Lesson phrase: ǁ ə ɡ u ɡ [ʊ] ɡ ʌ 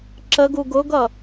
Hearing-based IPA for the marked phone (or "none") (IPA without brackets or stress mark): ʊ